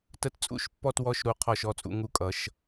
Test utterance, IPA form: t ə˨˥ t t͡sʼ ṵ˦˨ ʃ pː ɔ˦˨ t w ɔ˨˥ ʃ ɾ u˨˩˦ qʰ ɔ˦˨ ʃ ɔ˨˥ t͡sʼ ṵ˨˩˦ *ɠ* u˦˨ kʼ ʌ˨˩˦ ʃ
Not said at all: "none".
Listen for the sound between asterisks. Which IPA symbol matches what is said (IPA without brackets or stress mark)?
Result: ŋ